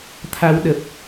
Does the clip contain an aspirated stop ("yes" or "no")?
yes